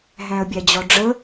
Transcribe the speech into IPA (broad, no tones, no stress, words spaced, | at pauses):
ɦæ̃ə̯bʲæd͡ʑɔɖ͡ʐə